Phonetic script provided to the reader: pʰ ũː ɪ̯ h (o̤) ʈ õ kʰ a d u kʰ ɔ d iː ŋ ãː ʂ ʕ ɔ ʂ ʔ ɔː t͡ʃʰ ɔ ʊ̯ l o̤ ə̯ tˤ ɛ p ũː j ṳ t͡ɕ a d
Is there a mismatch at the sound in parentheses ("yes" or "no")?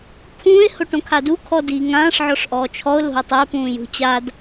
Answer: yes